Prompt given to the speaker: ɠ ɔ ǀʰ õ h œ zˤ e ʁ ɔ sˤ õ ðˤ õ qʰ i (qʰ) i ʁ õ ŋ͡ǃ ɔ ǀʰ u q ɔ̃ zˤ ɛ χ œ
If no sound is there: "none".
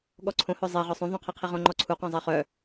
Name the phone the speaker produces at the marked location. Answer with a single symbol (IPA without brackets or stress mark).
qʰ